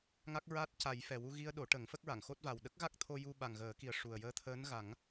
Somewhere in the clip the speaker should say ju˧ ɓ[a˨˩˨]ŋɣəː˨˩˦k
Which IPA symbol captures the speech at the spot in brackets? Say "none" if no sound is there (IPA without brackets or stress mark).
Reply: a˨˩